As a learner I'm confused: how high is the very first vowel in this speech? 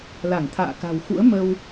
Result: low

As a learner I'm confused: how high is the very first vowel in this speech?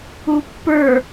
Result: high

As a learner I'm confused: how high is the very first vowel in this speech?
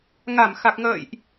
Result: low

